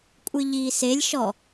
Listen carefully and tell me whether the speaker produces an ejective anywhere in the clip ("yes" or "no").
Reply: yes